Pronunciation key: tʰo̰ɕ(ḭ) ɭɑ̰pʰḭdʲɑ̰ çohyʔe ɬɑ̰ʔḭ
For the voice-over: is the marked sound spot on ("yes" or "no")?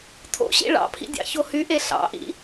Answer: yes